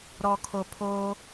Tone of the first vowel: low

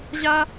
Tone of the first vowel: high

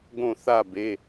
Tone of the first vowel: falling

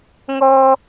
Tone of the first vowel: high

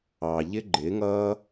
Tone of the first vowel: low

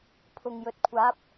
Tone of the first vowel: low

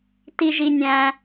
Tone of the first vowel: high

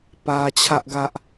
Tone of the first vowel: high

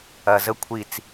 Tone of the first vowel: low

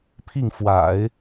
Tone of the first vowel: falling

